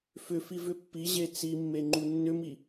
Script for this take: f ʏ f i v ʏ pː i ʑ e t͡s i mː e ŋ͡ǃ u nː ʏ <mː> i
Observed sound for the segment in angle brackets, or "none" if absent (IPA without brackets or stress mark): m